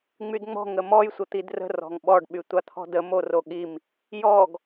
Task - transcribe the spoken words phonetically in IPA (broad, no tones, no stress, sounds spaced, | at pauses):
ŋ͡m y d ŋ͡m ɔ̤ ŋ ə m ɔ j sʷ ə t̪ i d r ə̤ r ɔ̤ ŋ ɓ ɔ ɖ ɓ y tʷ a t̪ʰ ɔ̤ d ə m o r o ɠ i m | j ɔ ɡ